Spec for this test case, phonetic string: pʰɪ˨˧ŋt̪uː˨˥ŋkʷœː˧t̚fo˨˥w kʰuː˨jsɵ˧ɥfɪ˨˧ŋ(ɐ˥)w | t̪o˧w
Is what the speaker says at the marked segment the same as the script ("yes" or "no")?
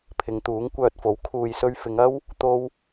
yes